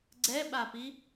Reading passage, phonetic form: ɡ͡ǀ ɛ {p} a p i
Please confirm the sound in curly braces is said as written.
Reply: no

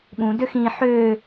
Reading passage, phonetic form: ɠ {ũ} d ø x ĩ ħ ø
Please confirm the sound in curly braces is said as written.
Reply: yes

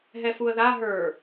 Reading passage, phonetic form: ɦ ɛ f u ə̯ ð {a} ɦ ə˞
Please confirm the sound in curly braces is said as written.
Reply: yes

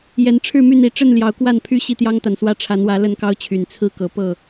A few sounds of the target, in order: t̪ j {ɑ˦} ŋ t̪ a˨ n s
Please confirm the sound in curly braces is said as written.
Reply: yes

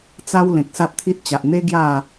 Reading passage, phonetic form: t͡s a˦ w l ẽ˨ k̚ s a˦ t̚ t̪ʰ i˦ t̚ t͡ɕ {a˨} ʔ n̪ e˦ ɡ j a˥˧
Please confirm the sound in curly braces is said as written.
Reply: yes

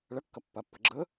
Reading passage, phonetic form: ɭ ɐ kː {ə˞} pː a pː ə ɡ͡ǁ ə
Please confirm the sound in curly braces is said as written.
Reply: no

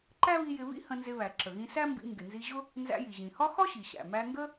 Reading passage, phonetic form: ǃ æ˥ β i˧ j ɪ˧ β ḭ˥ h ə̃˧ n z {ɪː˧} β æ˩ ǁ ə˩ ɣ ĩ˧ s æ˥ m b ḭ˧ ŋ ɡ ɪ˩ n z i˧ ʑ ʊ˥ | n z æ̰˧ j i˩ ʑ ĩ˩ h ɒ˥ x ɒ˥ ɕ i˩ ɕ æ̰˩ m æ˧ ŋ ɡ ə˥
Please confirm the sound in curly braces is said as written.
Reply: no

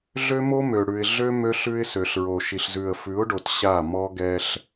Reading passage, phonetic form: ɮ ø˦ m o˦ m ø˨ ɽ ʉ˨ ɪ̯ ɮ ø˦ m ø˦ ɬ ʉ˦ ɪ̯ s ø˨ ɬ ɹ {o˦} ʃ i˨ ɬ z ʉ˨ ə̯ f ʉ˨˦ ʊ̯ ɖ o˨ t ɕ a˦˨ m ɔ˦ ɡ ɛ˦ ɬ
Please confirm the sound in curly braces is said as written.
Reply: no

